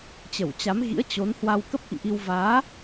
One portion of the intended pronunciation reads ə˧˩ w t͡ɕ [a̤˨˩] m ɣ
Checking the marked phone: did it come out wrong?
yes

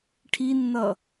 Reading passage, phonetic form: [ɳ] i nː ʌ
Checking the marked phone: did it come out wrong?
yes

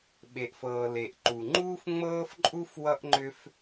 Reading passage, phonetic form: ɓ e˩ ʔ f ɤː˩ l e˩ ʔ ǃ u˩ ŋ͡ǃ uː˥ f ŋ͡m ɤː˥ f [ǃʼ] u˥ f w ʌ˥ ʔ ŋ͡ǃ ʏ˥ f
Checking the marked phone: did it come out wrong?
no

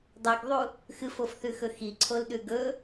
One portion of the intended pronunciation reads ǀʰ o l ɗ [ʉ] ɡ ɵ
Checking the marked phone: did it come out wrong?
no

